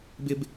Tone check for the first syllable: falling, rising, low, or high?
high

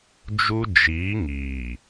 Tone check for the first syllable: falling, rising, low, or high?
high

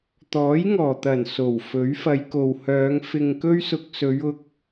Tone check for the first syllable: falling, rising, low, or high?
rising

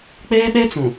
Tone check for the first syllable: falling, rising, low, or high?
high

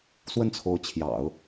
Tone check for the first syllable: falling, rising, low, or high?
falling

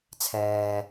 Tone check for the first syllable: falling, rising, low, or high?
low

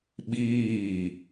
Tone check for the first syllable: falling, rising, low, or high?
falling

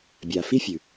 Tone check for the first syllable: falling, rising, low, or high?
low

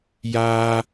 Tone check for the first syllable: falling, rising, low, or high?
high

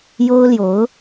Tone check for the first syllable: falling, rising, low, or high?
high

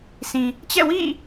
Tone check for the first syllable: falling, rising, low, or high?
low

